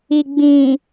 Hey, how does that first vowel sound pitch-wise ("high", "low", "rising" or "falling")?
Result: low